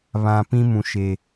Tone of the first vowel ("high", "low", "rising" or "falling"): low